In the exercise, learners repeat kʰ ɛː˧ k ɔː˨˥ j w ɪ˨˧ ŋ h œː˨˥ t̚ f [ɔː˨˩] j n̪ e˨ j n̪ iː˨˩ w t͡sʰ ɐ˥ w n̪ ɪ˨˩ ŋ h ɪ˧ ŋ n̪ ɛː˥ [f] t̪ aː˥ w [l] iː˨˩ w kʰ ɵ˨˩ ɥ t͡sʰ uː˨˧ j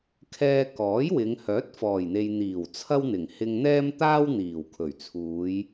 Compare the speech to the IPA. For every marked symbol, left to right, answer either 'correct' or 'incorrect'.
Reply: correct, incorrect, incorrect

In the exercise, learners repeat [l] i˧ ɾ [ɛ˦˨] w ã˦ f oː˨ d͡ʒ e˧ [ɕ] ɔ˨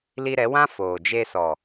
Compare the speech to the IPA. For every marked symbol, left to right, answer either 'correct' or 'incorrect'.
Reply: correct, incorrect, incorrect

